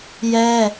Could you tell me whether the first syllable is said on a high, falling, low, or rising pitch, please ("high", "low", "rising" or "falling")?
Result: high